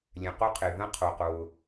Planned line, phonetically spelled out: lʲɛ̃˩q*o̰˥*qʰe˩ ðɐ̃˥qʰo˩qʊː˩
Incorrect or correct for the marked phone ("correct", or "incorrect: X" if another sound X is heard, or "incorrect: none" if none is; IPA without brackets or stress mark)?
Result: incorrect: o˥